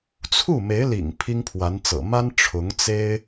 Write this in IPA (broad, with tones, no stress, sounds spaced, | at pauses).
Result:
t͡sʰ u˥˩ m e˧˥ ɪ̯ l ḭ˨˩ ŋ pʰ i˥ ŋ pʰ w a˧˥ n t͡s ɤ̰˨˩ m a˥ n ʈ͡ʂʰ ʊ˧˥ ŋ t͡s e˥ ɪ̯